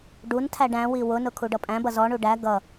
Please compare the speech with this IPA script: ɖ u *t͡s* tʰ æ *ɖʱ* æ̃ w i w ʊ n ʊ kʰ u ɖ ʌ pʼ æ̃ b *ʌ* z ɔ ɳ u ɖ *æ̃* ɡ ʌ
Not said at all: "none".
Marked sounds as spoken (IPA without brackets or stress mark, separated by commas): n, ɖ, ʌ, æ